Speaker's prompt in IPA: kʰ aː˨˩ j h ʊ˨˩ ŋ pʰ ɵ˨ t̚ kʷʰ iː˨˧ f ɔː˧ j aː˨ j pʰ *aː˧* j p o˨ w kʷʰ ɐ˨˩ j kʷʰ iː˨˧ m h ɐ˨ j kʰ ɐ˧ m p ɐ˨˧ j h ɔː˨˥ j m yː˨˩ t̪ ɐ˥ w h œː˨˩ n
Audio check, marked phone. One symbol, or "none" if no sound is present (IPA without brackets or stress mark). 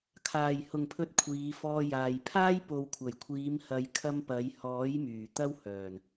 aː˥